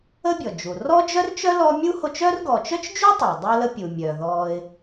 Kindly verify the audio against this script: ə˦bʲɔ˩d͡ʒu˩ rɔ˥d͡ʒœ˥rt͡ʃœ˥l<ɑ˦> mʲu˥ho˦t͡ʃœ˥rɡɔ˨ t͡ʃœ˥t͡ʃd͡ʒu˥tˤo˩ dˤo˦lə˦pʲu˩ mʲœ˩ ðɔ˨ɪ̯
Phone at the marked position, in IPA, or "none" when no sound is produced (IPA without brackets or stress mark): ɔ˦